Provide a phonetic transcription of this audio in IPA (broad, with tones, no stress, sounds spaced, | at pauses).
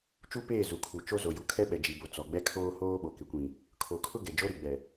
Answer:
t͡ʃ u˦ p eː˦˨ z u˨ kʰ u˨ t͡ʃ o˦ z o˨ j u˨ kʰ ɛ˦ ɓ ɛ˨ d͡ʒ i˨ b o˨ t͡s ɔ˨ ɡ͡b ɛ˦ kʰ oː˦ h oː˦ ɓ o˨ k ɪ˨ kʷ ĩ˨ | kʰ o˨ kʰ ʊ˦ ɡ ɛ˨ d͡ʒ o˦ ɾ i˨ ɡ͡b ɛ˨